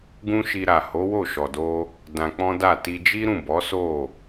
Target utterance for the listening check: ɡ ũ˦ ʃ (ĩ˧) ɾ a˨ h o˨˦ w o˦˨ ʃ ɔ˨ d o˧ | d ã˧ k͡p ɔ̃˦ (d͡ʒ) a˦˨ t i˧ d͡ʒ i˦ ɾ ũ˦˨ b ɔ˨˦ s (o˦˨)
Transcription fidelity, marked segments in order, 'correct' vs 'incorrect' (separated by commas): incorrect, incorrect, correct